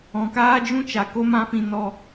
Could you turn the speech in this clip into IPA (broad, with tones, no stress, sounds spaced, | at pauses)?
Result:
ɔ̃˨ k aː˦ d͡ʒ ũ˦ t͡ʃ a˨ k o˦ m ã˦ f ĩ˧ n ɔ˧